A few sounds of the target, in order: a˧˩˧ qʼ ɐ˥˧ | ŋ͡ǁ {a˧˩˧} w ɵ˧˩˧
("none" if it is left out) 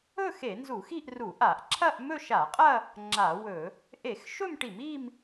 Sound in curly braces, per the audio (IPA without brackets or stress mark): a˧˩˧